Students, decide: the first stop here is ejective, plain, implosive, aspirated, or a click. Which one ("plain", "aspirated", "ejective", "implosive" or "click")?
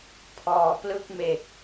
aspirated